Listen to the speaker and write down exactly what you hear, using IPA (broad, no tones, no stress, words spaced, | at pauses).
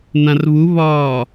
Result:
nãrβuβɒː